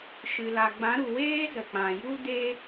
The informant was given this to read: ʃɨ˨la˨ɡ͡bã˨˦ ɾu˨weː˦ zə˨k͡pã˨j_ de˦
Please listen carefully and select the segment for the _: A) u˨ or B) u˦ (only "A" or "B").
B